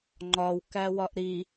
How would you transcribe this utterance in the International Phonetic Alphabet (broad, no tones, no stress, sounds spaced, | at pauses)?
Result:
ŋ͡ǃ ɒ w k æ w ɒ ʔ ɾ i